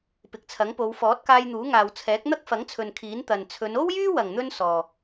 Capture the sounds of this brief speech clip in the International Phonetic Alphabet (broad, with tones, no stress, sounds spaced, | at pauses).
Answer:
p ɪ˨ k̚ t͡sʰ ɐ˨˥ ŋ p o˨˧ w f ɔː˨˥ t̚ k aː˧ j n̪ uː˨˥ ŋ aː˨ w t͡sʰ ɛː˨˥ k̚ n̪ ɐ˥ k̚ f ɐ˨˥ ŋ t͡sʰ ɵ˨ n kʰ iː˨˥ n t̪ ɐ˨ n t͡sʰ ɵ˨˧ n o˥ w j yː˥ w ɐ˨˩ ŋ n̪ ɵ˧ n s ɔː˨